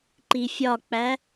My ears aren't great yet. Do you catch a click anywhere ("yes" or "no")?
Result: yes